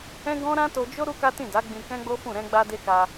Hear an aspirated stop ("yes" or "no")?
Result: no